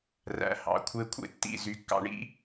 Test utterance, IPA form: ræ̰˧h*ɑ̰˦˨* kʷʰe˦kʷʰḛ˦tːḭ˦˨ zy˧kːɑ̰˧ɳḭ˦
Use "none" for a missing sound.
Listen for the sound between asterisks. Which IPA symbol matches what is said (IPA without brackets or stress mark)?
ɑ̰˨